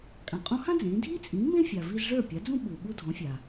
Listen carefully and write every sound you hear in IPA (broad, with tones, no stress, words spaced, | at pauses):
kʼã˩qʼũ˧hã˥ d͡zẽː˩˥ dʱiː˥t͡sʼĩː˩˥mẽ˥fʲa˩ vi˧zʐə˞˥˩ pʲa˩˥d͡zũ˥ɓuː˩ ɓu˧dʱɔ̃˩˥fʲaː˩